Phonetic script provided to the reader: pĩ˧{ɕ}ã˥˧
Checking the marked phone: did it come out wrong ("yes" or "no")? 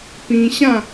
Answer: no